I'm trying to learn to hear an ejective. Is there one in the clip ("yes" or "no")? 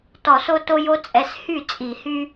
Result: yes